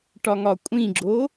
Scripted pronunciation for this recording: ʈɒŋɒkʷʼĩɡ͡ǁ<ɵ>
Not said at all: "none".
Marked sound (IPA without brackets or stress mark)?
o